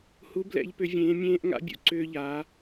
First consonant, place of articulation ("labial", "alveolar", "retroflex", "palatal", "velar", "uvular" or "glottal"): glottal